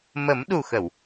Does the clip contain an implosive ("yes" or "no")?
yes